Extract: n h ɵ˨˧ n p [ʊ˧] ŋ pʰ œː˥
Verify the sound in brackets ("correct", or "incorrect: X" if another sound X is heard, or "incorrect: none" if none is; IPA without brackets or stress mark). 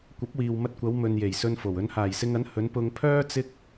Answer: correct